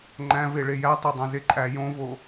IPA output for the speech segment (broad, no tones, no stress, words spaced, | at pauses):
ŋ͡ǃæ̃ve ɭejætˤo dˤæ̃zeǃʼæ jõvo